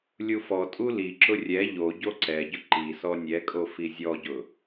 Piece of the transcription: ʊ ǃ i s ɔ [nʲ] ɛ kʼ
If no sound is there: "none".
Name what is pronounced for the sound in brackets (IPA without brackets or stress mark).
nʲ